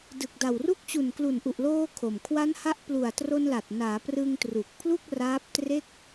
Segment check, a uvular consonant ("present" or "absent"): absent